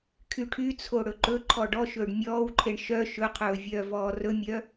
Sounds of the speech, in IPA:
kʰ y ʈʰ y t͡sʰ o ɽ ɵ ǃ ɵ ǃʰ ɔ ɖ ɔ ʃ ɵː ɖ mʲ ɔː w ǃʰ e ɳ ʃ œ ʃ ɵ qʰ ɵː vʲ œː v ɔː r ɵ mʲ œ

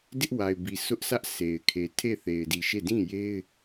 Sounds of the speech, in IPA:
d ɪ˦ ʔ w a˨ ɪ̯ b i˨ sʰ ʊ˦ ʔ sʰ ä˦ ʔ sʰ e˨ ɪ̯ kʰ e˨ tʰ e˦˨ θ e˨ ɪ̯ d i˨ ʃ e˦˨ d ĩ˦˨ j e˦ ɪ̯

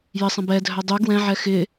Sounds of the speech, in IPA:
j ɪ sˤ ə̃ b ɛ dʱ œ dˤ y ɡ w ɛ̃ ʕ ɛ x ɪ

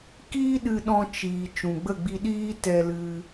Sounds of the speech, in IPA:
k iː˦ ɗ ɨ˧ ɗ ɔ̃˧ t͡ʃ iː˨ t͡ʃ ũ˨ ɡ͡b ə˦˨ ɡ͡b i˧ ɗ iː˦ t ɛ˧ l ɨ˧

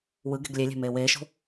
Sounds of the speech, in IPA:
w ɯ ɡ e̤ ɡ lʲ e lʲ e̤ m eː w eː ʃ o̤

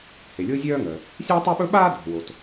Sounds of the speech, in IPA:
h e˩ lʲ o˥ zʲ œː˥ ŋ œ˩ | sʲ a˥ tˤ ɵ˥ ɓ ɵ˥ ɓ aː˥ dʱ ə̤˩ w o˩ t

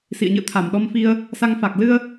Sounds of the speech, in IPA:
s ḭ˧˨ ə̯ ɲ ɨ̰˧˨ ə̯ t̪ʰ a˧˩ m ɗ ɔ˧ m f i˧ ə̯ | s a˧ ŋ f a˨˩ k̚ l ɨ˧ ə̯

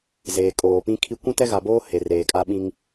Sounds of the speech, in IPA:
z eː˨ kʼ oː˨ p ĩ˦ kʰ i˦ kʷ ũ˦ t ɛ˦ ɣ a˨ b oː˦ h e˨ r eː˨ kʼ a˦ ɓ ĩ˦ ŋ

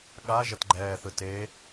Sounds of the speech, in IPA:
ɠ a ʒ ʌ t ɡ͡ǃ ɛː θ ɯ t e

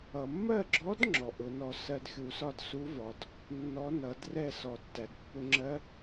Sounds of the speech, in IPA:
ʌ˩ mː ɜ˥˩ ɡ͡ǁ ɔ˧˥ d ŋ͡ǁ ɔ˩ ʔ ʊ˨˩˦ n ɔ˧ s ɜ˧ d xʲ u˨˩˦ s ɒ˥˩ d s u˧˥ v ɒ˩ d | nː ɔ˧˥ n ʌ˨˩˦ d r ɛ˥˩ s ɔ˨˩˦ tː æ˩ d pː ʊ˧ ŋ͡ǁ ɜ˧˥

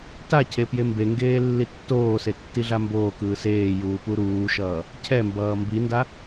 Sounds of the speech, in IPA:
t a cʰ e p j e m b e ŋ ɡ eː lː i tː oː s e tː i ɮ a m b oː k ɯː s eː j uː p u ɾ uː ʃ ʌː | cʰ ɛ m b ʌː m b i n d a

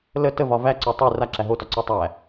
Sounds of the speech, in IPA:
l ə t ə v ɒ v æ ǀ ɔ tˤ i r a ǁ æ ɦ o t ɒ ǀ ɔ tˤ æ

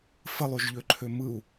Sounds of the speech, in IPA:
f ə lˠ y ʒ ʎ ø ǃʰ ø m ɯ u̯

